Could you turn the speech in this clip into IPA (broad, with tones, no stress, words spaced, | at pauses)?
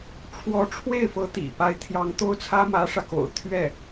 ʈ͡ʂʰwɔ˧˥ ʈ͡ʂʰwe˥˩ɪ̯fɤ˧˥ t̪ḭ˨˩pa˧˥ɪ̯ t̪ʰjɑ˧˥ŋt̪o˥ʊ̯t͡sʰä˥ mä˧˥ʂä˧ko̰˨˩ʊ̯ t̪ʰɥɛ˥˩